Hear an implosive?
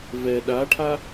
yes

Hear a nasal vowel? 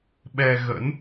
no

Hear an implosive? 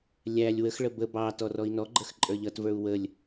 no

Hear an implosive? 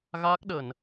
yes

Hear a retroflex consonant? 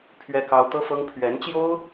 no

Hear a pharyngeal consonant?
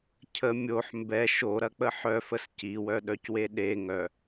yes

